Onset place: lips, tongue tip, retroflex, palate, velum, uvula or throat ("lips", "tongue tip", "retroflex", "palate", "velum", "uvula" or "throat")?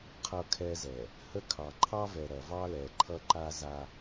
uvula